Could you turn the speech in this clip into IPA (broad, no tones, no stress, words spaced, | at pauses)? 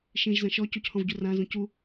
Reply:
ʃĩʒzɐ̃ ʃɔ cuchɔ̃vɟu rãzũ cu